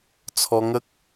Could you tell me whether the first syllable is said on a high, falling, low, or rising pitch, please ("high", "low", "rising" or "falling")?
high